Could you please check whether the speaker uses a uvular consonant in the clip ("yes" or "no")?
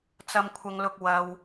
no